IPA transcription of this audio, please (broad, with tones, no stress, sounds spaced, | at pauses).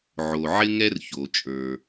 ʕ o˩ ʕ ɪ˥ ŋ ɛ˥ r ç o˩ t͡ʃʼ ə˞˩